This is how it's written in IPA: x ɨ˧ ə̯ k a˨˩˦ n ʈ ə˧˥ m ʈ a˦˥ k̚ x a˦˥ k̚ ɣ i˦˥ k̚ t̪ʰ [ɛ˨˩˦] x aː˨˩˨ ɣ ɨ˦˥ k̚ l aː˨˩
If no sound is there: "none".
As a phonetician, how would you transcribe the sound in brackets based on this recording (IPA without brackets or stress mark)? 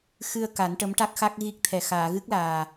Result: ɛ˨˩